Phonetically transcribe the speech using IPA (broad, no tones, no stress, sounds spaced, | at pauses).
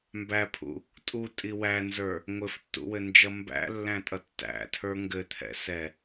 m b æ pʰ ṵ | tʼ u tʼ i w æ n z ə˞ | ŋʷ ɘ f tː ṵ w ɘ n d͡ʒ ʌ m b æ̰ lː æ̃ tʼ ʌ tː æ̰ tʰ ə˞ ŋ ɡ ɘ t̪ʰ ɛ̰ s ɛ